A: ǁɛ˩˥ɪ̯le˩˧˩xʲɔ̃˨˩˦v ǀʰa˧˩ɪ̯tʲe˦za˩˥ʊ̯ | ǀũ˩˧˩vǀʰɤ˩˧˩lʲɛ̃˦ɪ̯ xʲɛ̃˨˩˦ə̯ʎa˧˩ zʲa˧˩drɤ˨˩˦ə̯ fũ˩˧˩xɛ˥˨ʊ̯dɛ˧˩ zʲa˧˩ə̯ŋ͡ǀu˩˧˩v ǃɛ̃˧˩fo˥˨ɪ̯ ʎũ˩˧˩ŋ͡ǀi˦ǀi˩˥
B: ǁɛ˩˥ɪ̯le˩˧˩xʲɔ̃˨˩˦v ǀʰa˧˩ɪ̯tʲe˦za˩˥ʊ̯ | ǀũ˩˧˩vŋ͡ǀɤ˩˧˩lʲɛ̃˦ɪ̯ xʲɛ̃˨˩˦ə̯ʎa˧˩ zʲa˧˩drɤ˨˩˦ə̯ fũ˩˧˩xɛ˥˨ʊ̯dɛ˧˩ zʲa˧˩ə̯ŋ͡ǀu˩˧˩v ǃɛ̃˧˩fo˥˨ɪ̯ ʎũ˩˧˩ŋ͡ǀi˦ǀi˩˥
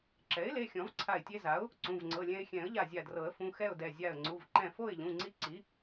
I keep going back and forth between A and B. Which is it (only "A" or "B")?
B